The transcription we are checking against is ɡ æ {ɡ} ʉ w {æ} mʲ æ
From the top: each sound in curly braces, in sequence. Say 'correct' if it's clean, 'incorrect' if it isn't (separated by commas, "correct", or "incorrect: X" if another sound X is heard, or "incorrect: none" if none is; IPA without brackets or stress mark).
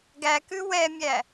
incorrect: k, incorrect: ɛ